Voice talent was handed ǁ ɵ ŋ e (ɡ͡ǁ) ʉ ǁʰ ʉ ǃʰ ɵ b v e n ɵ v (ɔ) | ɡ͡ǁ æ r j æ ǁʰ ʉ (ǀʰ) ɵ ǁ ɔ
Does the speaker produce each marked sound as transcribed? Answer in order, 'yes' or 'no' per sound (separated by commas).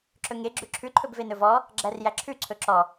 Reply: yes, yes, yes